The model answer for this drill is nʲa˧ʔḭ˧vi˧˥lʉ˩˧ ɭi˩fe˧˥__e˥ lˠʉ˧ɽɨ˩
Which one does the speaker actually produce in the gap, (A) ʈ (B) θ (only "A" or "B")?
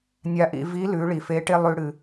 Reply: A